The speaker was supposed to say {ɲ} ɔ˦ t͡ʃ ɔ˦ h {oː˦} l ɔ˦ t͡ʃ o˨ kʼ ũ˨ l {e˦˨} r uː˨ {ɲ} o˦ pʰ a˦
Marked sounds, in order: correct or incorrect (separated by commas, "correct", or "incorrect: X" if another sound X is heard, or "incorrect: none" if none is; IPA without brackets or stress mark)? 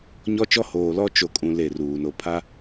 correct, incorrect: oː˨, correct, incorrect: n